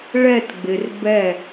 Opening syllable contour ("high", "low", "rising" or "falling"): falling